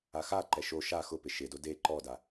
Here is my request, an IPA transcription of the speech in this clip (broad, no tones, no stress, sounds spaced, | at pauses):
a x a ǃ ɛ ʃ o ʃ a x ʊ p ɪ ʃ ɪ d o d e ǃ ɔ d a